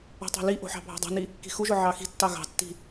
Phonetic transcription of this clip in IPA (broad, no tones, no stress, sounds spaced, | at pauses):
o̤ tˤ ɑ̤ l i ʔ o̤ ħ ɑ̤ bʱ ɑ̤ dˤ ɑ̤ n i | k i̤ x u ʒ ʊ ʕ ɑ x i̤ tː ɑ ɣ ɑ̤ tː i̤